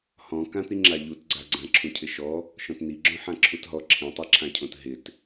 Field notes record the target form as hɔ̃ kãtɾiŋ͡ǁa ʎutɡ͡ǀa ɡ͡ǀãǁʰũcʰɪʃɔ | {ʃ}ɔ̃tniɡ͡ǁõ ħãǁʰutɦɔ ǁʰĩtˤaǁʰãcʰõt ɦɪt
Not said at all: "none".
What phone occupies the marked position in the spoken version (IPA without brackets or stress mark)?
ʃ